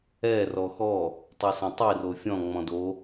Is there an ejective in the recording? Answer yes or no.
no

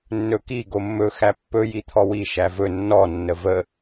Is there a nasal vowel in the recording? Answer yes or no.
no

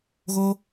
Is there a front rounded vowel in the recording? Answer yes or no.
no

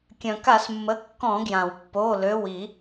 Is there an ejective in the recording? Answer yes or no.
no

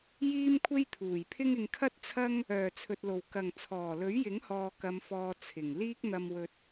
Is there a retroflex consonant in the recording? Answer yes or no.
no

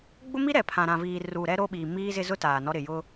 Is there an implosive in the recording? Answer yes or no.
yes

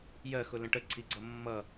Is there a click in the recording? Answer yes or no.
yes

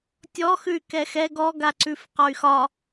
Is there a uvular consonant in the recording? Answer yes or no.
yes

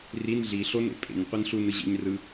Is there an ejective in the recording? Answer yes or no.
yes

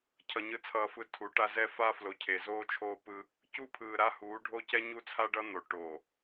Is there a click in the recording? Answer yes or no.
no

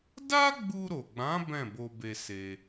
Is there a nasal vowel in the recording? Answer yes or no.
yes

